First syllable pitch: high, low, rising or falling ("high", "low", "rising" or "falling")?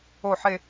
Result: low